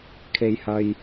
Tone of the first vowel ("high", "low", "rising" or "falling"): low